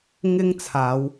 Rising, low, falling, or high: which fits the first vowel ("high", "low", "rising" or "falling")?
high